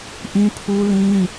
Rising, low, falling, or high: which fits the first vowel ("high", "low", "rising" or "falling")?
high